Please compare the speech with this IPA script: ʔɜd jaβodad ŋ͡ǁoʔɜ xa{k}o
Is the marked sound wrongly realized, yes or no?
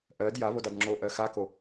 no